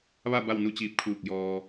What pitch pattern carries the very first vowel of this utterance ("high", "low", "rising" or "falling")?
falling